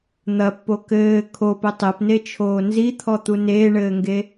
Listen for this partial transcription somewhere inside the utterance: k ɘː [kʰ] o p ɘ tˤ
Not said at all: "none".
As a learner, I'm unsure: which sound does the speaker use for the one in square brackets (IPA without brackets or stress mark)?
kʰ